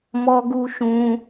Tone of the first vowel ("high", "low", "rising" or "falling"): high